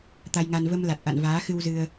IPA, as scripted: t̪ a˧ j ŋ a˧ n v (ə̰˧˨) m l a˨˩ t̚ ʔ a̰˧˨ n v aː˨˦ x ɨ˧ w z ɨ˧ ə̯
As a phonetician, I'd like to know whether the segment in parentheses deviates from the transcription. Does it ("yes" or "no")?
yes